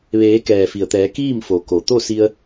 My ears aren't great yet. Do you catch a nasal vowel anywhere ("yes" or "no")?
no